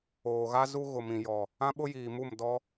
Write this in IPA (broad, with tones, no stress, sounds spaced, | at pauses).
oː˨ ɣ a˦ z u˦ ɣ ʊ˨ m ĩ˨ j ɔ˨ | ã˦ ɓ ʊ˦ j iː˨ m u˦˨ m d ɔ˦